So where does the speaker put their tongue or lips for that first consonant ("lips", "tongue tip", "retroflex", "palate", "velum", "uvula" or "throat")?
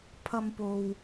lips